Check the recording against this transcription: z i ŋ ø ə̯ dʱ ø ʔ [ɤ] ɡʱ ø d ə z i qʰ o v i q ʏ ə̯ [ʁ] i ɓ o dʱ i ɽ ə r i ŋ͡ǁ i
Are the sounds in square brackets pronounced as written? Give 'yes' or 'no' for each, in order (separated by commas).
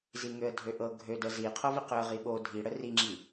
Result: yes, yes